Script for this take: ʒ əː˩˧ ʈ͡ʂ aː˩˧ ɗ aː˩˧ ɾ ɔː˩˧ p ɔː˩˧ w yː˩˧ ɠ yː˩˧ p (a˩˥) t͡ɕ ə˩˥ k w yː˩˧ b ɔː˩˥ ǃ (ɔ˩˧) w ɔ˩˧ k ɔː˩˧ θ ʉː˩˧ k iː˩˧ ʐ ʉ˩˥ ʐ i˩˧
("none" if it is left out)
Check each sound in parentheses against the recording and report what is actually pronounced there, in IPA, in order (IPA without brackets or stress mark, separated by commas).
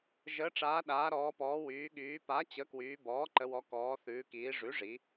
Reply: a˩˥, ə˩˧